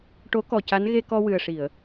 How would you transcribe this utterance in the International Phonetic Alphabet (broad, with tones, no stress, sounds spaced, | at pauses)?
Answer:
ʈ o˧˥ k ɔ˨˩ c a˧˥ n ɣ e˧ k ɔ˧ w ɨ˨˩ ə̯ ʂ i˨˩˨ ə̯